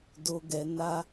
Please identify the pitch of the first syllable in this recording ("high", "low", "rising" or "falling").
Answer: low